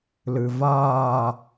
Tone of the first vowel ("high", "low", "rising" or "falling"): low